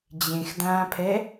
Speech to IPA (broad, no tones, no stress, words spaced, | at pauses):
d͡ʑẽxdãːpʰɛ